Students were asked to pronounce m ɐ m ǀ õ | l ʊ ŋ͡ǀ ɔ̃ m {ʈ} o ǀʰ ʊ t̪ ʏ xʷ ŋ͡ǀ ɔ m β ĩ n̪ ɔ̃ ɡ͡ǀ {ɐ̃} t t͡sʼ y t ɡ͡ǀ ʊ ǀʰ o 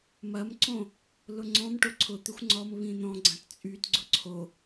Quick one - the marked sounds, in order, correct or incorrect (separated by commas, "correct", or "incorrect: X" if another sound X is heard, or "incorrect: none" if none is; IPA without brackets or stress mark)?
correct, correct